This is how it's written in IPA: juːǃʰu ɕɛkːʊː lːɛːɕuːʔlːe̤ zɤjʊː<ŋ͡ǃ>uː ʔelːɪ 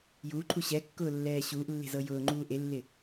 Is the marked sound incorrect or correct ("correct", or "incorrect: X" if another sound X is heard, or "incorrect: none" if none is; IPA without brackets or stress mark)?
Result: correct